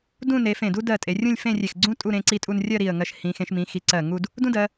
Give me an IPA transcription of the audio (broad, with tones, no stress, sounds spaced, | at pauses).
d ũ˥˧ n e˩˧ f ẽ˧˩ d u˥ d ɜ˧˩ tʼ e˩˧ rʲ ũ˥˧ lʲ f ẽ˥˧ rʲ e˧˩ x ɡ͡ǀ ũ˥ tʼ u˧ ɾ ẽ˩˧ ǀ i˧ tʼ u˧ n rʲ ɜ˥˧ ɾ i˧˩ ə̯ ŋ ɜ˧ ʃ h ĩ˩˧ x ẽ˩˧ ʃ m ĩ˩˧ x i˩˧ ǀ ɜ˧˩ ŋ u˥˧ d | d ũ˥ d ɜ˩˧